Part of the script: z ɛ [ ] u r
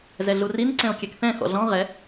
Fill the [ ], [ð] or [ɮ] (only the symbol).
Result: ɮ